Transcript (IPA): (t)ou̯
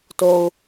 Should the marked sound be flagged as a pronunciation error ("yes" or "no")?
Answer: no